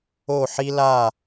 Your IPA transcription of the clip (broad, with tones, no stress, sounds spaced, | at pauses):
o˥˧ ħ i˥ l a˥˧